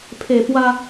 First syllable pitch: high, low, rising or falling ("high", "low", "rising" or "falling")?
low